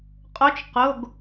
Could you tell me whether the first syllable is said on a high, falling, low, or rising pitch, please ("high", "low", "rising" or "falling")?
rising